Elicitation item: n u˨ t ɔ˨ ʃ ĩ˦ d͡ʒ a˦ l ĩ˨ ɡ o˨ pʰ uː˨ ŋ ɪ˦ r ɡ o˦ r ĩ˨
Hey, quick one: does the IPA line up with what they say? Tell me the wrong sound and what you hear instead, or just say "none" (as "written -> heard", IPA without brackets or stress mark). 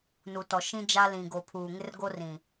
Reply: none